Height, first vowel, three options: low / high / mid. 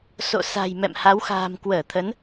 mid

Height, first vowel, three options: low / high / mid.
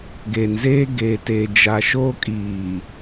mid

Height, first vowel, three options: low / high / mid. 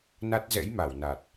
low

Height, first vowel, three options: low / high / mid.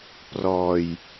mid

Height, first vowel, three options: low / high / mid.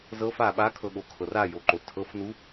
mid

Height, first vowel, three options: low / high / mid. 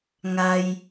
low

